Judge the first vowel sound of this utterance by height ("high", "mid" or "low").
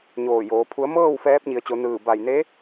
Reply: mid